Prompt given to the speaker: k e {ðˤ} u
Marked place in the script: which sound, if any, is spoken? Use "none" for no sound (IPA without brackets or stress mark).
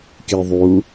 ðˤ